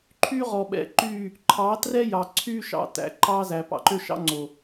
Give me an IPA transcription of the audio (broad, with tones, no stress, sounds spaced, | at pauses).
ǃʰ yː˦ ʁ ɔ˨ ɓ ɛ̰˨ ǃ yː˦˨ | ǃʰ ɑ˨˦ t r ɛ˦ j ɑ˨ ǀʰ yː˦ ʃ ɑ̰˨ t æ̰˨ ǃ ɑ˦ z æ˨ p ɑ̰˨ ǃ ø˦ ʃ ɑ̰˦ ŋ͡ǀ o˨